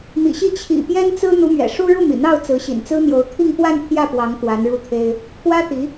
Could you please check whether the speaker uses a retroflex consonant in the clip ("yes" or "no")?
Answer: yes